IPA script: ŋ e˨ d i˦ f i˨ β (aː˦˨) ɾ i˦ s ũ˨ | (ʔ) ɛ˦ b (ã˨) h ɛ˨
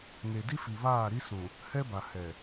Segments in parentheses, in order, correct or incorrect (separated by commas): correct, incorrect, incorrect